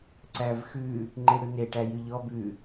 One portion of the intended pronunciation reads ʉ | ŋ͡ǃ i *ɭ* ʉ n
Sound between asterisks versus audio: incorrect: ɽ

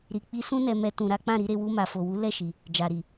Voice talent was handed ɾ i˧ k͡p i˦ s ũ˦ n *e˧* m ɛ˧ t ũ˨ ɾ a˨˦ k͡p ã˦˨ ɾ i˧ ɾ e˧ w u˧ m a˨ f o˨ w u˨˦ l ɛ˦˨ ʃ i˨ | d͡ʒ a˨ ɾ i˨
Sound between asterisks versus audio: incorrect: ɛ˧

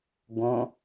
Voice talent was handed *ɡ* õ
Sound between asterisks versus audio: correct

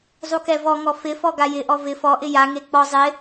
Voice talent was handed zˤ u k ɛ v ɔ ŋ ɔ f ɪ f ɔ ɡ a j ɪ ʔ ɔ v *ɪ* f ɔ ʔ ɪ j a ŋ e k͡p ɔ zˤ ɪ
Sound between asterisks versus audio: correct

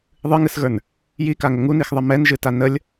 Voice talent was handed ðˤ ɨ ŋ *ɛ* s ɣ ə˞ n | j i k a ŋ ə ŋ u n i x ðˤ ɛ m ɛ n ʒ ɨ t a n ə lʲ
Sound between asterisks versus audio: incorrect: ɨ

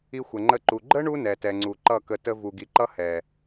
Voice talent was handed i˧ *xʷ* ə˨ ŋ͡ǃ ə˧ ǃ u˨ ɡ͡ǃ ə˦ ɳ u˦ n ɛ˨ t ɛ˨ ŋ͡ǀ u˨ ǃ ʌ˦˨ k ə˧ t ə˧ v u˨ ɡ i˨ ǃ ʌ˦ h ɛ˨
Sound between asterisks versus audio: correct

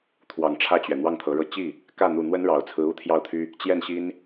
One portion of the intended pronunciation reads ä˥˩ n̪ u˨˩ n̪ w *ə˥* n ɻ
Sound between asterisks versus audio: correct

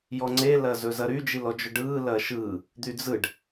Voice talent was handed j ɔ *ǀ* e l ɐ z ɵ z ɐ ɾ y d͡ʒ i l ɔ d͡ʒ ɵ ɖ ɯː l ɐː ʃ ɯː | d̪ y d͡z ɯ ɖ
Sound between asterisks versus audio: incorrect: ŋ͡ǀ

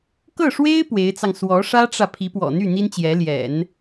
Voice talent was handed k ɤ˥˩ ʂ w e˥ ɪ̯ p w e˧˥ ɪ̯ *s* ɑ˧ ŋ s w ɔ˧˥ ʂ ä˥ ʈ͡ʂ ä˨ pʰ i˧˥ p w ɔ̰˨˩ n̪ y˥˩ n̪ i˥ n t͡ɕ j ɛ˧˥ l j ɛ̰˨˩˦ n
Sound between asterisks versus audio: incorrect: t͡s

